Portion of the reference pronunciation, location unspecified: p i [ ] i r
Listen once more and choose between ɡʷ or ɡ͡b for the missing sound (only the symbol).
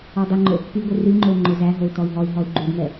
ɡʷ